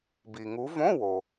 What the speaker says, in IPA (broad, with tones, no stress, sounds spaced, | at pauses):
b i˩ ŋ u˨˦ v õ˧˥˧ w o˩